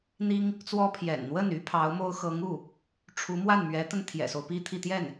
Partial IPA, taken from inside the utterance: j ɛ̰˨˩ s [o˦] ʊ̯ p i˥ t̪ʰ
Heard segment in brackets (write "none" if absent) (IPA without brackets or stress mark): o˦